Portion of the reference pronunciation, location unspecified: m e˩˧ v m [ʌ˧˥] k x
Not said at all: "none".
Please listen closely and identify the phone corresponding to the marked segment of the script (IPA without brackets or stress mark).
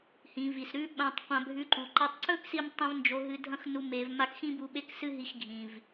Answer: a˧˥